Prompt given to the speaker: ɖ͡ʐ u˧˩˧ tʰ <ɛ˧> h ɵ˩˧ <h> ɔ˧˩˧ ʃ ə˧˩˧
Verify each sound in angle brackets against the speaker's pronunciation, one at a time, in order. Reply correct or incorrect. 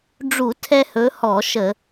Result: correct, correct

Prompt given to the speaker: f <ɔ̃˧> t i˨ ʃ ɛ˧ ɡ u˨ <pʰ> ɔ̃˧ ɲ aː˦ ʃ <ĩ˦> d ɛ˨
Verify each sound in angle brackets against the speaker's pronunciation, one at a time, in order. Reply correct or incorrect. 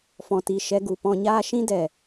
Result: incorrect, incorrect, correct

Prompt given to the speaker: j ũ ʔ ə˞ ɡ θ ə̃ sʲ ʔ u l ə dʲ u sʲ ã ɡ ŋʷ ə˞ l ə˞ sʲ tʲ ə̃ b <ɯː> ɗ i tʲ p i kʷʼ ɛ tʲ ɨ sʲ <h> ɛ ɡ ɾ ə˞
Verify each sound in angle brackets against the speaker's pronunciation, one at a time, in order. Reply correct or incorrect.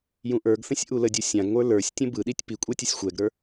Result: incorrect, incorrect

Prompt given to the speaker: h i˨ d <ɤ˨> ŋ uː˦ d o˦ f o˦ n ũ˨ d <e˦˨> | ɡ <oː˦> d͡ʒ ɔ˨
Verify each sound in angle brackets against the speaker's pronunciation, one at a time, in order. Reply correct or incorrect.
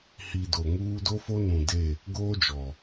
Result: incorrect, correct, correct

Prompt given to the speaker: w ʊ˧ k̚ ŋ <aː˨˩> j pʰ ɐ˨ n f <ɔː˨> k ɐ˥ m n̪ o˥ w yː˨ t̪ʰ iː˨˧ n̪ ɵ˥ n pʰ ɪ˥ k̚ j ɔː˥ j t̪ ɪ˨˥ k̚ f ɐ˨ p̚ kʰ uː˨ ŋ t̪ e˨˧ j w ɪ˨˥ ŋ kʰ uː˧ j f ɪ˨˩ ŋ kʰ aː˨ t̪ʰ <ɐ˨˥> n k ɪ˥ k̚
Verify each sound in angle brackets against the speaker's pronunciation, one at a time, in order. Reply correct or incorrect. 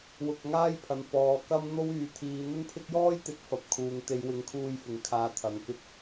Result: incorrect, correct, incorrect

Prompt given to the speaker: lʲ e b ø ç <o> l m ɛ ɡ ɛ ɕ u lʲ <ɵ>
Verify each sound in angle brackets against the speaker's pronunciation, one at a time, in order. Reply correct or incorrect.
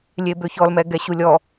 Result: incorrect, incorrect

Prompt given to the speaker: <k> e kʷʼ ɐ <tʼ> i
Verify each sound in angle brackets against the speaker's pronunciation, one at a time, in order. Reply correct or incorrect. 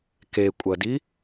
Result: correct, incorrect

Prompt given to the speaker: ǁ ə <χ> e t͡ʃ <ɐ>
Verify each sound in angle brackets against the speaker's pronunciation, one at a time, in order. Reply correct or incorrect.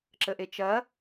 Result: incorrect, correct

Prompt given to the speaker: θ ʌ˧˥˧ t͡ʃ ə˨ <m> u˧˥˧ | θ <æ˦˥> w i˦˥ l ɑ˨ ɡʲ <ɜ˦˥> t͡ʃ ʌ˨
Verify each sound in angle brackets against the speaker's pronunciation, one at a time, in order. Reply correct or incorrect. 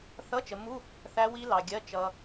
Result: correct, correct, incorrect

